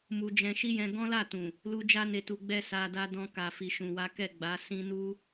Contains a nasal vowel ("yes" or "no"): yes